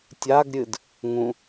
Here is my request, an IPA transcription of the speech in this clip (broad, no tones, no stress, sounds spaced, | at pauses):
tʲ a ɡ ɾʲ ɨ d | ŋ ũ